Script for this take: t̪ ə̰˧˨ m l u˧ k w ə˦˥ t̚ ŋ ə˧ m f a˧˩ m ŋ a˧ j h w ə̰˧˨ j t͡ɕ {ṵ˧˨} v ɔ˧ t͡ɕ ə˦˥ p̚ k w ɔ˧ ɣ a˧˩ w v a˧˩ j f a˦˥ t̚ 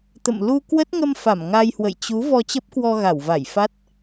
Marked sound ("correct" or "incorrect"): incorrect